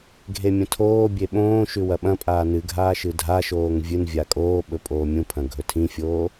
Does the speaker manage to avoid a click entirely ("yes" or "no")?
yes